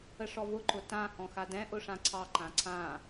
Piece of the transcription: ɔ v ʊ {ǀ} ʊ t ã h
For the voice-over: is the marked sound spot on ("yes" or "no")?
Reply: no